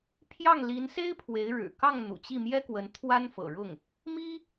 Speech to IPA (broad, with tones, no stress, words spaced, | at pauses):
pʰjɑ˥˩ŋli˧˥nse˥ɪ̯ pʰwe˧˥ɪ̯ ɻɻ̩˨˩kɑ˥˩ŋ n̪ṵ˨˩t͡ɕi˥˩mjɛ˥kwə˧˥n t̪ʰwa˥nfɤ̰˨˩ɻʊ˥˩ŋ | mi˥